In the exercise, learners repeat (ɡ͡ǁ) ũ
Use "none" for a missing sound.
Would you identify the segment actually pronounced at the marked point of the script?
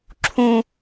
ǁʰ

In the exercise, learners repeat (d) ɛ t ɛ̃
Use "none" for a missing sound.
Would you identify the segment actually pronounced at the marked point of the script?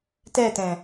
t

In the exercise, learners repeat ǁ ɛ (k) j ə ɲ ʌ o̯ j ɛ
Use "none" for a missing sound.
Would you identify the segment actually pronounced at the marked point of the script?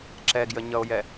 ɡ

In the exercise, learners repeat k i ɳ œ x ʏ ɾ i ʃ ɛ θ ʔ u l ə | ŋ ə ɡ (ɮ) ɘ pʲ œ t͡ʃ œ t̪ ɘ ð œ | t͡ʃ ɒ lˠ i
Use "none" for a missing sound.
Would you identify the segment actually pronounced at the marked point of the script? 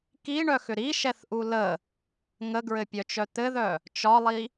ɹ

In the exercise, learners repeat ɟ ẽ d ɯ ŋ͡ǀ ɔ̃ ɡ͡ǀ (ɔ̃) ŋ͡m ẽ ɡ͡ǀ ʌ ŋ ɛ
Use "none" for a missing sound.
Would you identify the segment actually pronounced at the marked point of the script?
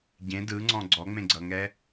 ɔ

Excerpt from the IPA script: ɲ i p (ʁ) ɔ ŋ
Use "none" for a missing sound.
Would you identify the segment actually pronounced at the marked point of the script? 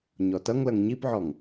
ʕ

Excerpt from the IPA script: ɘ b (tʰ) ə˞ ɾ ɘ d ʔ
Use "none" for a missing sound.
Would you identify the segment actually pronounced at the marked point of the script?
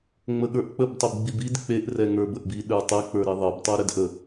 tˤ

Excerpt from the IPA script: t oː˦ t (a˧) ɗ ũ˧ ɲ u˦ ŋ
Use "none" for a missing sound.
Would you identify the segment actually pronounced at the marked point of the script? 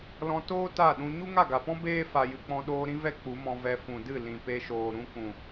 a˦˨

